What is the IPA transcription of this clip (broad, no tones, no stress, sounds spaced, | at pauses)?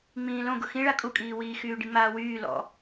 ŋ͡m ĩː l õ ɡ ʊ x ĩ ɭ a kʼ u kʼ iː w iː x yː ɖ ĩ ŋ͡m aː w yː l ɔ̰